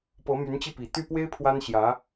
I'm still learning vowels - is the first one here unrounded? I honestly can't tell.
yes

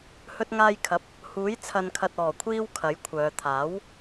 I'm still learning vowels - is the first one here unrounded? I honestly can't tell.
no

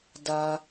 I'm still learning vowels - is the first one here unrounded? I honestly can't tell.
yes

